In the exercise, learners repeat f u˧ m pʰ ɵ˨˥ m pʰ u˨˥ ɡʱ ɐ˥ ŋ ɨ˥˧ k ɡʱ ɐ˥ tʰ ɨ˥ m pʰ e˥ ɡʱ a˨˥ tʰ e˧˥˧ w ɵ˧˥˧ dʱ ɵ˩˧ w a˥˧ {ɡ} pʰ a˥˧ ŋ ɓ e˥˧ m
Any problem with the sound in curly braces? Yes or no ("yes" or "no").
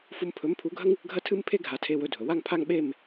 yes